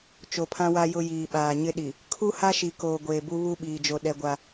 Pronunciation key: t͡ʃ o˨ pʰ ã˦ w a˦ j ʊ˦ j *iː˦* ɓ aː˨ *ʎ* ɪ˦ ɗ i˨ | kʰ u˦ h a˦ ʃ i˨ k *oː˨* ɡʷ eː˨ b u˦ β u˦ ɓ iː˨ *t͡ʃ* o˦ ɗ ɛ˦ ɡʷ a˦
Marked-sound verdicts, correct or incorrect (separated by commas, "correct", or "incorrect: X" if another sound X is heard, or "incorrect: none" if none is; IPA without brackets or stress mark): incorrect: iː˨, incorrect: ɲ, correct, incorrect: d͡ʒ